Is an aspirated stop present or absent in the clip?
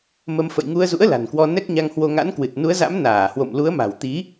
absent